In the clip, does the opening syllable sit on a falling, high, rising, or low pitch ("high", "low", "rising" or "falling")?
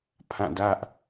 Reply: falling